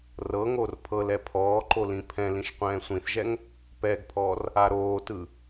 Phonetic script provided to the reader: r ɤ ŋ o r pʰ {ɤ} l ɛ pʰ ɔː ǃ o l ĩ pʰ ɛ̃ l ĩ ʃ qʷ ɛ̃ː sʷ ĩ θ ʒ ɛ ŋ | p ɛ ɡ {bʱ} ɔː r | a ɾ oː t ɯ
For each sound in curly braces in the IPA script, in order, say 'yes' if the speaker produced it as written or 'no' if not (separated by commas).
yes, no